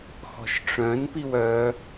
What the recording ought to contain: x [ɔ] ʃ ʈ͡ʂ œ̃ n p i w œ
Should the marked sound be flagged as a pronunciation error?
yes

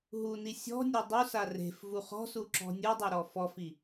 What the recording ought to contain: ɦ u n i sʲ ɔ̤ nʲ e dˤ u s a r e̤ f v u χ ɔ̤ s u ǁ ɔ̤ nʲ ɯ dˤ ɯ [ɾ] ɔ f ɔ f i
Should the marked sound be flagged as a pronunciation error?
no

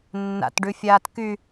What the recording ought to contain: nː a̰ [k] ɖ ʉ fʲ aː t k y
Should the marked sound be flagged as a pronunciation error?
yes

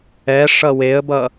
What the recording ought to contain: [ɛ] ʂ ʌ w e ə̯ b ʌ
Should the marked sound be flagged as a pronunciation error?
no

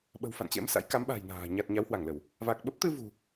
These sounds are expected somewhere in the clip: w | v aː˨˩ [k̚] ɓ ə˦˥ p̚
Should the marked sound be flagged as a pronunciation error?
no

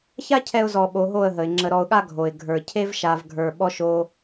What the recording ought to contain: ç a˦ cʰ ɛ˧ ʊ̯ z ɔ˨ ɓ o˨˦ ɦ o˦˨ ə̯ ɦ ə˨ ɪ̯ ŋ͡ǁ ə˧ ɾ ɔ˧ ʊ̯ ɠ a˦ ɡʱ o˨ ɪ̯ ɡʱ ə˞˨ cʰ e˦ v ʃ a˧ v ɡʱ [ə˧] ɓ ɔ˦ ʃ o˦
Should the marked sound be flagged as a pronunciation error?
yes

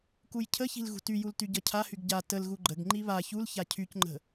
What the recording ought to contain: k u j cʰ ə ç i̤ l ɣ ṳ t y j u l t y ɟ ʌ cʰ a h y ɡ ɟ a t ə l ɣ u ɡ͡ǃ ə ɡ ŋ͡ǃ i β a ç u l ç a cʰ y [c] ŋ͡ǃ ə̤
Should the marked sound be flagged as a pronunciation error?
no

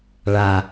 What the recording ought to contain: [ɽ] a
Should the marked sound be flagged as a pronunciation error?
yes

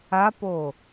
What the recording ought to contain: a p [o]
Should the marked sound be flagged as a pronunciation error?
no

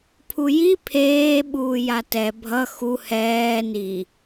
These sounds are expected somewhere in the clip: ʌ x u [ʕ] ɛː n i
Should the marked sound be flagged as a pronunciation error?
yes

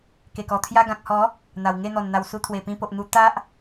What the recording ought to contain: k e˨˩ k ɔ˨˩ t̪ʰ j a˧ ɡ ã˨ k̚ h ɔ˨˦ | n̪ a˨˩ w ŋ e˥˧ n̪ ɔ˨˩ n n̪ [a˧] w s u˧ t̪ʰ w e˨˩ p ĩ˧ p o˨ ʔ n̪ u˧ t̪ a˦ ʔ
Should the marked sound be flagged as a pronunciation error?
yes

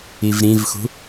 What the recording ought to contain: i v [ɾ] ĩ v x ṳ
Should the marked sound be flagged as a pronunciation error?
no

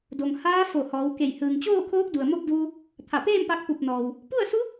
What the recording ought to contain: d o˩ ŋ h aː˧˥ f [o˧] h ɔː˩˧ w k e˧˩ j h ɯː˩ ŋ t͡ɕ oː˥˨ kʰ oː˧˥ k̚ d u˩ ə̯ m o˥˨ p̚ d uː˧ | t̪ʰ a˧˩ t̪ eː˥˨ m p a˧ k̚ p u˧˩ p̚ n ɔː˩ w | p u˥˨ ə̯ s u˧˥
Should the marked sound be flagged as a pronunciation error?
yes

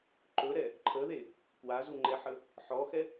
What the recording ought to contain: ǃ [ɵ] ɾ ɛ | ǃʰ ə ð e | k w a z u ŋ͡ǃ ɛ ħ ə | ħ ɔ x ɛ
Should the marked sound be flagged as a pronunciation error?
no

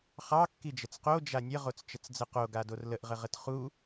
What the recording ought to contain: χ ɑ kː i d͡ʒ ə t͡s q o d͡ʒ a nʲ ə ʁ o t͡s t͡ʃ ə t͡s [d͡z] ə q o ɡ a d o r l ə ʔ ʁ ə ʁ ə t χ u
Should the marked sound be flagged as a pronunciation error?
no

